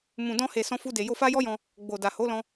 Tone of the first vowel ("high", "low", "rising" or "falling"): low